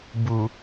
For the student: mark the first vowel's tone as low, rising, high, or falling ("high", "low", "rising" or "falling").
low